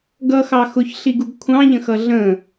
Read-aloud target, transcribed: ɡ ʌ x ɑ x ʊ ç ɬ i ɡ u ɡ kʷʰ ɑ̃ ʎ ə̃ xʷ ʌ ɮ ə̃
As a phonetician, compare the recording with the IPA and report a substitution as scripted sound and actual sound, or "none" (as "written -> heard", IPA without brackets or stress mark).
xʷ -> x